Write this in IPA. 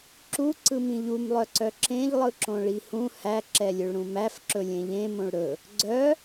ǁ u ǀ ɯ m ĩ ʎ u m lˠ œ ǀ œ ǁ ẽ ʎ lˠ ɯ ǁ õ ɭ i h ũ h æ ǁ ɛ lʲ ɵ ɭ ɾ ũ m æ f ǁ ɵ lʲ ẽ ʎ ẽ m õ ɭ ɾ ɵ | ɡ͡ǀ œ

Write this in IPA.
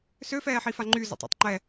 s ø f ɛː ħ i f a ŋ͡ǃ y z ɔ̰ tˤ ɔ̰ tˤ ŋ͡ǃ ɛ

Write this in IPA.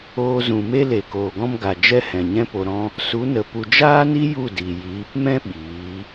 oː˧ z ũ˨ m e˦ l e˨ k oː˨ ɡ ɔ̃˦ m ɡ a˨ d͡ʒ ɛ˦ h ɛ̃˨ ɲ ɛ̃˦ p o˧ ɾ ɔ̃˦ | s u˨˦ n ə˨ p u˨ d͡ʒ aː˦ n i˦ j u˦˨ d i˨ j iː˨˦ p m ɛ̃˦ ɓ iː˨˦

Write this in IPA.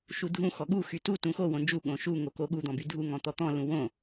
ʃ u dʱ ũ x ɔ ɠ u x y t u t ũ x o w õ n d͡ʒ u ɠ õ ʃ u ŋ o k o ɠ u d̪ ɔ̃ b y dʱ u ŋ ɔ̃ t̪ ɔ t̪ ɔ̃ l ũ w õ

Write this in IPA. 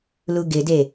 l u ɡ ɪ d e

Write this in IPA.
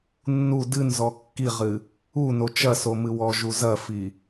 nː u d ɨ n z ɔ kː i ʁ ɨ | u n o t͡ʃ ɐ s o m ɨ w ɔ ʒ u z ɐ f i

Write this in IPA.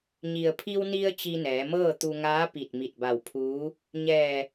ɲ i˩ ə̯ pʰ i˧ w n i˧ ə̯ t͡ɕ i˧ n ɛː˩˧ m ɤː˥˨ t̪ u˧ ŋ aː˧˥ p i˧˩ t̚ m i˧˩ t̚ b a˧˩ w pʰ uː˧˥ | ɲ ɛː˧˩

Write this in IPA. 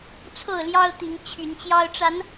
t͡sʰ o˥˨ ʊ̯ l j ɑ˦ ʊ̯ t̪ i˨˦ ŋ t͡ɕʰ y˨˦ n t͡ɕ j ɑ˦ ʊ̯ ʈ͡ʂ a˨˦ n

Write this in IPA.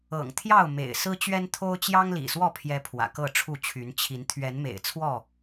ɤ̰˨˩ ŋ t̪ʰ j ɑ˥˨ ʊ̯ m ḛ˨˩ ɪ̯ s ɹ̩˦ t͡ɕ ɥ ɛ˦ n t̪ʰ o˦ ʊ̯ t͡ɕ j ɑ˦ ŋ l ḭ˨˩ s w ɔ˥˨ pʰ j ɛ˨˦ pʰ w ä̰˨˩ k ɤ˥˨ ʈ͡ʂʰ u˥˨ t͡ɕʰ y˨˦ n t͡ɕʰ i˨˦ n t̪ʰ ɥ ɛ˨˦ n m ḛ˨˩ ɪ̯ t͡sʰ w ɔ˥˨

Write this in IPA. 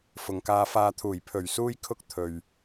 f ʊ˨ ŋ k aː˧ f aː˧ t̪ʰ uː˨˩ j pʰ ɵ˨˩ ɥ s uː˧ j kʰ ʊ˧ k̚ t̪ʰ ɵ˨ ɥ

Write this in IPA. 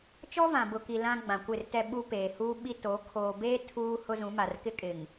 t͡ʃ ɔ˦ v ã˨ b ʊ˨ k i˨ l ã˦ ɡ͡b ã˨ kʷ ɪ˦˨ r t ɛ˦ ɓ u˦ p eː˨ h uː˦ ɓ i˦ t o˨˦ kʰ oː˨ b eː˦ tʰ uː˦ h ʊ˦ z ũ˨˦ m a˨ r k ɪ˦ kʼ ɪ˨ ŋ

